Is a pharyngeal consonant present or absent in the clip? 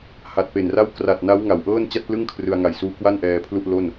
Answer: absent